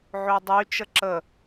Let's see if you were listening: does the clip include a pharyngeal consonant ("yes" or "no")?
yes